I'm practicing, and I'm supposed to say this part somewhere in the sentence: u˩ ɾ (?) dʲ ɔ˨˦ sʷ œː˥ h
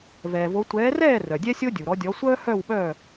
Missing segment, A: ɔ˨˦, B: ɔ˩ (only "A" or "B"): A